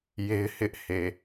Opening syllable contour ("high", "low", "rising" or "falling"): high